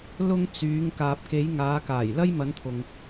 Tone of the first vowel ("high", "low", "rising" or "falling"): high